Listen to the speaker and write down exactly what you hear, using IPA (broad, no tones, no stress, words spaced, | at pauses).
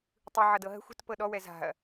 tˤɯʕʌdɤ ɦə̤xʷ ə̤tpɤ ɗɔwɛ za̤ɐ̯